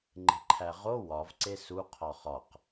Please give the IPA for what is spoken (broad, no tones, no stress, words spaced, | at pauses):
ŋ͡ǃe̤ǃʰæʁo wɒvǀe suqʰɒ χɒq